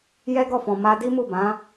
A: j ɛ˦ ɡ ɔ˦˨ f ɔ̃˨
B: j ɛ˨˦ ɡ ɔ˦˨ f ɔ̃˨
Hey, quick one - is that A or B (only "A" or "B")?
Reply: A